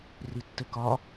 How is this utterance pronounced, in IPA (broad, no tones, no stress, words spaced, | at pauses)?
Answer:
ritːɘkɒ